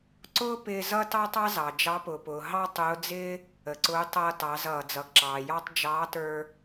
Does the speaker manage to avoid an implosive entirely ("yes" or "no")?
yes